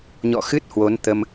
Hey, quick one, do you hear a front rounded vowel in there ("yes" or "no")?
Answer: no